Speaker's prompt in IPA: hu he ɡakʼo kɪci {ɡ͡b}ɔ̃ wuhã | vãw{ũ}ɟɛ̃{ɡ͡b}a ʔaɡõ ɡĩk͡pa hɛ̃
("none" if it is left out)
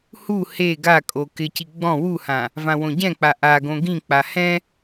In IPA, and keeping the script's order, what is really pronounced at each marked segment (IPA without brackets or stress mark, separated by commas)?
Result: ɡ͡b, õ, k͡p